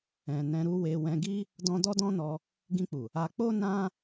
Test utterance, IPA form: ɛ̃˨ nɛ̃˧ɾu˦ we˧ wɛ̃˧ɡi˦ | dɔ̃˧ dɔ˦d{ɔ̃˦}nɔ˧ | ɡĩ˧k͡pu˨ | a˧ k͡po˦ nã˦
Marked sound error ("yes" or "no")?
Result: no